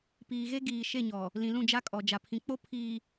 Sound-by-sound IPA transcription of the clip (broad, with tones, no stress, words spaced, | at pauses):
piː˨ɣe˦ ɡiː˨ʃe˦˨ɲɔ˨ | lĩ˨lũ˦˨d͡ʒa˦kʼɔ˨ d͡ʒa˨pʰĩ˨k͡po˦ pʰiː˨